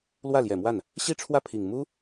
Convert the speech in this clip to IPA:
l w ä˥˩ l j ɛ˨˩ m w a˥˩ n | ɕ i˥ ʈ͡ʂʰ w ä˥˩ pʰ i˨˩ ŋ m u˥

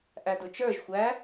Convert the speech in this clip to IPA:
ʔ æ d ʊ t͡ʃ ə˞ ʒ xʷ æ

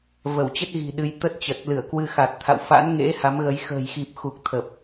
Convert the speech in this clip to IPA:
v ə˧˩ w t͡ɕ ə˦˥ t̚ ɣ i̤˨˩ ɗ ɨ˧ j t̪ ə˦˥ t̚ t͡ɕ ə˨˩ t̚ l ɨ˧˩ ə̯ k w ɨ˧ x a˨˩ t̚ t̪ʰ a̰˧˨ w f a̰˧˥ n ŋ ḛ˧˥ h a˨˦ m ɣ ə˨˦ j x ə̤ː˨˩ j x i˨˩ p̚ x u˨˩ k̚ t̪ʰ ə˨˩ p̚

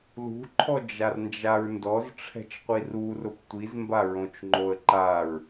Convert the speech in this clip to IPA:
l ṳ ǃʰ ɔ d͡ʒ a r n d͡ʒ a ɹ n d ɔ z ʈ͡ʂʰ ɛ̤ t͡ʃ qʷ i r u r ʊ p tʷ i z m b a ɹ õ t͡ʃ ŋ͡ǃ o ə̯ ǃ a ɹ

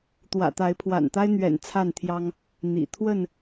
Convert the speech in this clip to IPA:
t̪ w ä̰˨˩ t̪ a˨˦ ɪ̯ pʰ w a̰˨˩ n t̪ a˦ ɪ̯ n̪ ɥ ɛ̰˨˩ n t͡sʰ a˥˨ n t̪ʰ j ɑ˦ ŋ | n̪ ḭ˨˩ t̪ʰ w ə˥˨ n

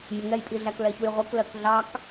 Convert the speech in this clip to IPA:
mʲ ɛ ŋ ɛ j pʼ i ɮ æ k l ɛ ç u j ʁʷ i k l ɜ k ɮ ɑ k

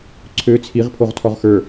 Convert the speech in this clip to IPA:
ǀʰ ø t͡sʰ i ʁ pʰ o ʁ tʰ ɔ ʁ x ə˞

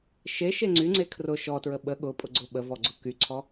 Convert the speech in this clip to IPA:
ʃ e ʃ e ŋ͡ǀ y ŋ͡ǀ e kʰ r ʊ ʃ ɔ t ɹ ə ɓ ə ɠ ʊ pʼ ʊ ɡ͡ǀ ʊ ɓ ə v ɔ ɡ͡ǀ ʊ k y ǀʰ ɔ

